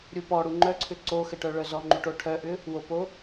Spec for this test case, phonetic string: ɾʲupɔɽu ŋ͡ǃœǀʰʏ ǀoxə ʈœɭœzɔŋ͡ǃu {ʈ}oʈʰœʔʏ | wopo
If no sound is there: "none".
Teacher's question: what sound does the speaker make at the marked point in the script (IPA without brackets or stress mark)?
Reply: ʈ